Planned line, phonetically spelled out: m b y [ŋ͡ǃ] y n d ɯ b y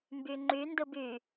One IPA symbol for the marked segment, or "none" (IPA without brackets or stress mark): ŋ͡ǃ